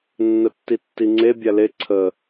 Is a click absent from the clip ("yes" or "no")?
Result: no